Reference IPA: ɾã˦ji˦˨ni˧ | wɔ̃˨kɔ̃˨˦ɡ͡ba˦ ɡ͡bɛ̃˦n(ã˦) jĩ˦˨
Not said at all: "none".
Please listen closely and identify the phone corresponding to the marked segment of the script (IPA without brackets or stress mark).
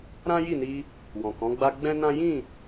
ã˦